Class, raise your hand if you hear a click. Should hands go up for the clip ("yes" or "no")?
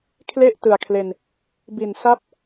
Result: no